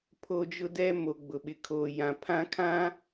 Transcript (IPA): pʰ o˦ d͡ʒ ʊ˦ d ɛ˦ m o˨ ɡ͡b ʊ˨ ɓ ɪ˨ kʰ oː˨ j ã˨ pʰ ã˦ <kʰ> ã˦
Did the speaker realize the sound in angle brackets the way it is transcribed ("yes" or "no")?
yes